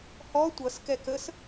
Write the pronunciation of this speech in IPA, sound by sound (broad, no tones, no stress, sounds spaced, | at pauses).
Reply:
h ɔ tʷ ʌ s k ɛ k ə s